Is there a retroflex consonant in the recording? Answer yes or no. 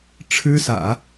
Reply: yes